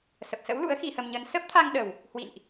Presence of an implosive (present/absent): present